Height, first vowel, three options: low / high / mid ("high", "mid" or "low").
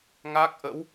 low